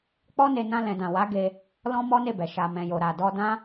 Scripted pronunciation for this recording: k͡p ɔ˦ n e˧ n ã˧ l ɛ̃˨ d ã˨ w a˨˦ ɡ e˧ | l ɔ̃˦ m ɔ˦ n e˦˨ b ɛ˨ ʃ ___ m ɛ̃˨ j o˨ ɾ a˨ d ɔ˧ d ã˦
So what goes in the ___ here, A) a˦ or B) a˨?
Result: B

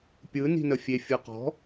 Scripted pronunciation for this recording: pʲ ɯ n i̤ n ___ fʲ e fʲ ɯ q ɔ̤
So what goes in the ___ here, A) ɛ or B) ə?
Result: B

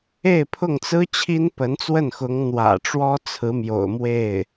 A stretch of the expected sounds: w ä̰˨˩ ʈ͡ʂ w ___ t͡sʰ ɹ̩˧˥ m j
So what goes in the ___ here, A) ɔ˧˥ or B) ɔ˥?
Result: B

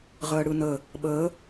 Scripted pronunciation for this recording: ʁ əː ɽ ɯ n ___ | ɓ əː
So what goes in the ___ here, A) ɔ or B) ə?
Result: B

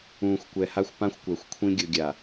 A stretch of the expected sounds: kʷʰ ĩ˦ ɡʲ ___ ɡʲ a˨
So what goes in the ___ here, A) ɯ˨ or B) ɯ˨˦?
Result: A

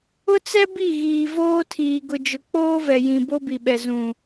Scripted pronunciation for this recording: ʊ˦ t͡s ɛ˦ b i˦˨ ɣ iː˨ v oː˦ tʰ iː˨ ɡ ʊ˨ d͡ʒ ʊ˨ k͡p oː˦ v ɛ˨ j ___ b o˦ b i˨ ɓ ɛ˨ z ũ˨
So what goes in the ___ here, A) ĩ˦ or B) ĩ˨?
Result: B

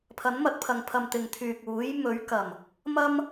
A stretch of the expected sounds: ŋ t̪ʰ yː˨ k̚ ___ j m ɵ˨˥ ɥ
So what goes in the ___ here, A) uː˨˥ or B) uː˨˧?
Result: A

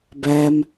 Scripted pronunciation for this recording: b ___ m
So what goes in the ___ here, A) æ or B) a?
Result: A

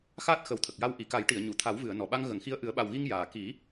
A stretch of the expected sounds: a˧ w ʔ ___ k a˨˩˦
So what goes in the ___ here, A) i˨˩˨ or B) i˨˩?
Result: A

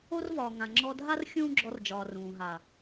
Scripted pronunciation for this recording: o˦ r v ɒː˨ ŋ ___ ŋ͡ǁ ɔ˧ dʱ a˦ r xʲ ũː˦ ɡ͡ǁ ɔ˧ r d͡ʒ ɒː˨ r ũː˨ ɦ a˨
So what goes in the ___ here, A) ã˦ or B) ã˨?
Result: B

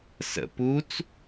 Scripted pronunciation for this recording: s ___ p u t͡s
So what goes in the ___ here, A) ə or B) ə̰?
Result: B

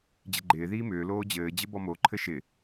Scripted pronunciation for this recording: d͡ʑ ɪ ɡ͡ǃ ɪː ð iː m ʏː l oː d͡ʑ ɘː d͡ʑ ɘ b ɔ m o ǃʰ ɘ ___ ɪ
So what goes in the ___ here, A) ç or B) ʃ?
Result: B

